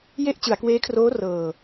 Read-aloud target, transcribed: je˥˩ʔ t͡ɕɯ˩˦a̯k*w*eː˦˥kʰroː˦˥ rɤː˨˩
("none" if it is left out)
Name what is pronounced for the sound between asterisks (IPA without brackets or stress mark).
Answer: w